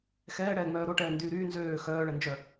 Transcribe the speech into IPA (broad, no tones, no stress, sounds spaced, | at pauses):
x ɛː ɽ ɛː ŋ͡m œː ɾ o ʈ ɛː n d yː ɾ yː n z øː x œː ɭ ɛ n d͡ʒ œ